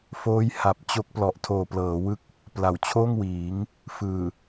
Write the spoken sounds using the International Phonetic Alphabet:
f oː˦˥ j h a˨˩ p̚ t͡ɕ o˦˥ k̚ p l ɔ˨˩ ʔ tʰ oː˨˩ p l ɤː˩˦ w ɯ˦˥ k̚ | p l a˨˩ w t͡ɕʰ oː˥˩ ŋ w iː˩˦ ŋ | f ɯː˨˩

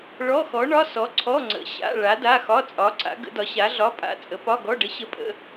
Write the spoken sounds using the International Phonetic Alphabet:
ɭ ɔ˧˥˧ x ɔ˨˥ ɳ ɒ˧˥˧ s ɔ˨˥ ǀʰ ɔ˧˥˧ ŋ͡ǀ ə̰˨˥ ɕ a̰˧˥˧ ɭ a˨˥ d a˧˥˧ x ɒ˧˥˧ t͡sʼ ɒ˨˥ ǀ a̰˨˥ ɡ ə̰˨˥ d ɒ˨˥ ɕ a˨˥ ɮ ɒ˧˥˧ pʼ a̰˧˥˧ t͡sʼ ə˨˥ p ɒ˧˥˧ ɡ ɔ˧˥˧ ɖ ə˨˥ ɕ ə˧˥˧ pʼ ə̰˧˥˧

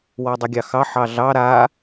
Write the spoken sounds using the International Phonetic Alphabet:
w ɔ dˤ e ɡʲ ɑ x ɑ ħ ɑ ɮ ɑ ɾ a

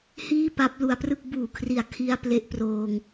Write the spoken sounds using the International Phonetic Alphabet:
h iː˥˩ p a˦˥ p̚ l u˧ a̯ p r ɯ˥˩ k̚ b uː˨˩ kʰ r i˨˩ a̯ kʰ i˧ a̯ p l e˦˥ ʔ p r oː˧ ŋ

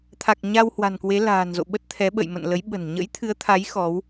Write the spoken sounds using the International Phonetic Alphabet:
t̪ʰ a˨˩ k̚ ɲ a˧ w h w a̤˨˩ n k w e˨˦ l a̤ː˨˩ n z o̰˧˨ ɓ ə˦˥ t̚ t̪ʰ ɛ˨˦ ɓ ə̰˧˨ j m ə̰˧˨ n l ə˨˦ j ɓ ə̤˨˩ n ɲ ə̰˧˥ j t̪ʰ ɨ˨˦ ə̯ t̪ʰ a˨˦ j x ɔ˨˦ w

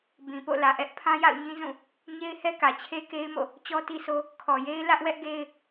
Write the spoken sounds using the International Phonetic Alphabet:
b ĩ˨ p o̰˦˨ l ä˨ ʔ ɛ˦ ʔ pʰ ã˦ j a̰˦˨ ʊ̯ ɲ ĩ˦ z ũ˦˨ | ɲ e˦ ɪ̯ h ɛ˦ k ä˨ t͡ɕʰ e˦ k e˦ ɪ̯ m o̰˦˨ | t͡ɕ ɔ˦ t i˦ s o˦ | kʰ ɔ˨ j e˦ ɪ̯ l ä˦ ʔ w ɛ˦ ʔ ɡ e˦ ɪ̯

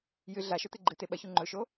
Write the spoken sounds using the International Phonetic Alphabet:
j ɨ ɮ a ʃ ɵ t̪ ɨ ɡ͡ǃ ɨ t̪ e ɓ ɐ ç u ŋ͡ǃ ɵ ʃ o

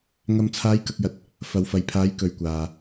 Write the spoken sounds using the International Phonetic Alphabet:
ŋ ɐ˨ m t͡sʰ aː˨˧ j k ɐ˨ k̚ j ɐ˨ t̚ | f ɐ˨ w f ɐ˨ j pʰ aː˨˧ j k ɵ˨ ɥ kʷ aː˨

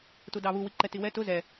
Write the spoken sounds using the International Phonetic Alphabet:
t u d ɑ β u w i ǃ ɛ t i w ɛ t ʊ z ɛ

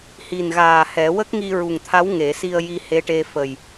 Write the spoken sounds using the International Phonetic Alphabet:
h i˨˩ n ɣ aː˨˩ h ɛ˨˩˦ w ə˦˥ k̚ ŋ i˧ ɹ u˨˩ ŋ t̪ʰ a˧˥ w ŋ e˨˩˦ s i˧ ə̯ j i˧ h e˧˥ ʈ e˧ f ə˨˩ j

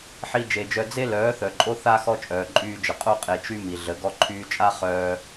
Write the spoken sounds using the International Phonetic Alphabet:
ħ i˧ d͡ʒ e˨ d͡ʒ œ˧ d͡z e˦ l œː˨˦ θ œ˨ ǃʼ o˦ θ a˦ x ɔ˦ t͡ʃʼ œː˨ ǃʼ yː˧ d͡ʒ ə˨ qʼ o˦ qʼ e˨ t͡ʃ y˦ m i˨ ɮ ə˨˦ ɡ ɔ˧ ǃʰ yː˧ t͡ʃʼ a˦ χ œː˦

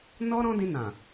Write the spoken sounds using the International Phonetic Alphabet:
n ɔ˦ ɾ ɔ̃˦ d ĩ˧ n ã˨

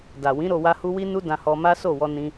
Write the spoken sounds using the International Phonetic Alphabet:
d a˨ w ĩ˨˦ ɾ o˧ w a˦ h u˦ w i˦ n u˦ d ã˧ h ɔ˧ m a˦ s o˦˨ w ɔ˧ n ĩ˦

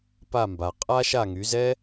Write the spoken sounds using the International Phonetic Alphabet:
p a˥˩ m b a˩ qʼ a˥ ʃ a˥˩ ŋ y˩˥ z ɛ˥

